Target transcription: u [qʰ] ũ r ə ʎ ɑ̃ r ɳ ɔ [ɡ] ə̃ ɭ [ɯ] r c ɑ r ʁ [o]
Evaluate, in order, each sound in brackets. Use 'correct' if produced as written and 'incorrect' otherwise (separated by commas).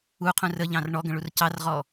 correct, correct, incorrect, incorrect